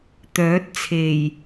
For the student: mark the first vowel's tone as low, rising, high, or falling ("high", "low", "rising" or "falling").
rising